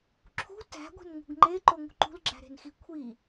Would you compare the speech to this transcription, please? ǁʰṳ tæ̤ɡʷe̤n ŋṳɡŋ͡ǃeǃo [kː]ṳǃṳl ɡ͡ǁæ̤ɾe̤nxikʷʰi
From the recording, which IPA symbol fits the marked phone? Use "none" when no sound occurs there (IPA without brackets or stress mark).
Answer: ŋ